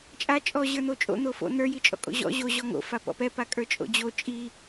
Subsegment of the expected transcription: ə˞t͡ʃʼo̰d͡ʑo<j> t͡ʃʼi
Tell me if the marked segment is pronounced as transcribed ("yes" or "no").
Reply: no